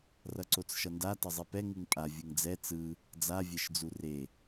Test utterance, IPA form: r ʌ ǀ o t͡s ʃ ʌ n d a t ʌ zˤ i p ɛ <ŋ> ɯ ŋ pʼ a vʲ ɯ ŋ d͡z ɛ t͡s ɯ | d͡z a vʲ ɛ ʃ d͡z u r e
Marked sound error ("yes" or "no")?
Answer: no